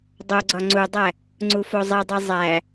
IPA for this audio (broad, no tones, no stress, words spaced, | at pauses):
dˤoɡ͡ǀɒ ŋ͡ǀudˤæ | ŋ͡ǀufozˤidˤi zˤæ